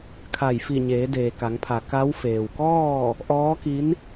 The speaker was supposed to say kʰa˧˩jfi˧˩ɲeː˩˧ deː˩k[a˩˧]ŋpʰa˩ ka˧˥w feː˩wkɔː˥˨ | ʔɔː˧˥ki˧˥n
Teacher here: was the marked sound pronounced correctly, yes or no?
yes